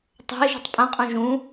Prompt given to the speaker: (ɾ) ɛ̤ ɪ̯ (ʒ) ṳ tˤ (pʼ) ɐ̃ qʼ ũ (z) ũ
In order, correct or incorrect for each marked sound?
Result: incorrect: tˤ, correct, correct, incorrect: ʒ

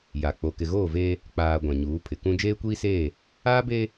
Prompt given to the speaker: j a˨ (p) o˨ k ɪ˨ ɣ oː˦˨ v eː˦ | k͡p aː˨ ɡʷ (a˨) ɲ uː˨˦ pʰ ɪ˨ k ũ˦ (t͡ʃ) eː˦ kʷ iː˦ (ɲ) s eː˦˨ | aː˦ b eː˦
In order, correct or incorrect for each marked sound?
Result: incorrect: k͡p, incorrect: ã˨, incorrect: d͡ʒ, incorrect: none

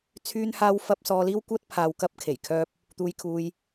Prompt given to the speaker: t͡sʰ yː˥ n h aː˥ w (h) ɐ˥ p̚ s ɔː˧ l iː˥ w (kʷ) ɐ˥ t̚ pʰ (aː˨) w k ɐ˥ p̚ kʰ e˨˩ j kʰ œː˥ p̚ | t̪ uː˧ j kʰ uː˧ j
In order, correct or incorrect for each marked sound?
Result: incorrect: f, correct, correct

